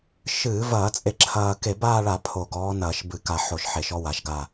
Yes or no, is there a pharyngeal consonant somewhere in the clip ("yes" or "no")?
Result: yes